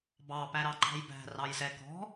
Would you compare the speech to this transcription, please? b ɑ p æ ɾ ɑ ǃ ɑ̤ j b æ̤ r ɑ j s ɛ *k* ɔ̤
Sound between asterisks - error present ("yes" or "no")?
no